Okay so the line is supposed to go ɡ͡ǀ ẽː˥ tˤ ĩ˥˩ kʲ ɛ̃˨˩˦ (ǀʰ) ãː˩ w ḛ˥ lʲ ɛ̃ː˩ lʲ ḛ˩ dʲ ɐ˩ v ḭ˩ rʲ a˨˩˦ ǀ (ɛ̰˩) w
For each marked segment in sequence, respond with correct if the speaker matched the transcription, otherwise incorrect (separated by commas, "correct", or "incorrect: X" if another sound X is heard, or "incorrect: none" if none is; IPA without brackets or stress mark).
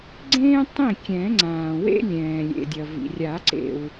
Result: incorrect: ŋ͡ǀ, incorrect: ḛ˩